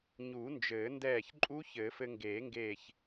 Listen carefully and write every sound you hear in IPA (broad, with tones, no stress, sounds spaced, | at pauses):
ɲ u˨˩˦ n d͡ʒ ɘː˨˩˦ n d ɛː˧˩ ç ǃʼ u˦˥ ç ɘ˨˩˦ f ɘ˧ ŋ ɡ eː˨˩˦ ŋ ɡ eː˧˩ ç